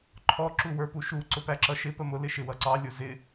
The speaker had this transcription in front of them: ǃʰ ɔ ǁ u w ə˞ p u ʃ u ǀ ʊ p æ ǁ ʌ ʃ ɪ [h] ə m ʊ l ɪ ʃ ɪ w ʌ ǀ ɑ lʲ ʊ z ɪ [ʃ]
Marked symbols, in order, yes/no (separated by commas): no, no